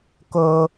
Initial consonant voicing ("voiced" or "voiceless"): voiceless